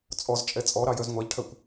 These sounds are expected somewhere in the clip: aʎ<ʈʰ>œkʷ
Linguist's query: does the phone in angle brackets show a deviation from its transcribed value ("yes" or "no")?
no